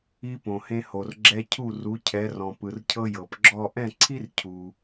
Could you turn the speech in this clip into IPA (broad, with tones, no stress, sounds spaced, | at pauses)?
i˧ p õ˩ h ẽ˧ h o˩ r ɡ͡ǁ ɛ˧ cʰ u˥˩ r u˩˥ cʰ ɛ˩˥ r ɔ̃˩ p ɯ˩ r cʰ ɤ˧ j ɤ˩ p ɡ͡ǁ ɔ˥˩ ʔ ɛ̃˥˩ ǀʰ i˥ r cʰ u˩